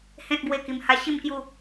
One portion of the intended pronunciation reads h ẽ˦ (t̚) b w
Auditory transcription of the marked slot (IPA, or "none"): t̚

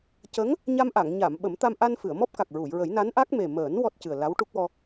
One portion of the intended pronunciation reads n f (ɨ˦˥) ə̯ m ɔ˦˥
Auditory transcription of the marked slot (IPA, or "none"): ɨ˨˩˨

